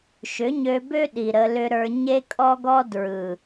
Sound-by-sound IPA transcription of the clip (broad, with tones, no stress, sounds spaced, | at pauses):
ʃ ʏ˨˦ ɲ ø˧ b ø˦ ɗ i˨ ɾ ə˧ l ʏ˦ ɾ ə˞˧ ɲ e˦ kʼ ɔ˦ ɡ ɔ˦ d ɹ ɯ˨